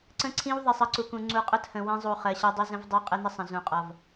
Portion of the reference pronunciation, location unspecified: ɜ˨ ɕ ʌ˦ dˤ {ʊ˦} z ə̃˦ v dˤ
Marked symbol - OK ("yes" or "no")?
yes